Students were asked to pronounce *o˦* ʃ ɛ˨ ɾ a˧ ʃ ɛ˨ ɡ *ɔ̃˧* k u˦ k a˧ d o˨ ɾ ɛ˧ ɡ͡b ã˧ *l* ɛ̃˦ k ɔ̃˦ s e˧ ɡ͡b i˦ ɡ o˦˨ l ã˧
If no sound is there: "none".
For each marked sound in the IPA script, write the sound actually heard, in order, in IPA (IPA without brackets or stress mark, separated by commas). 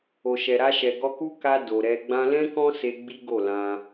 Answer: o˨, ɔ˧, l